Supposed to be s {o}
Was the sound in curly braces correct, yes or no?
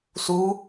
no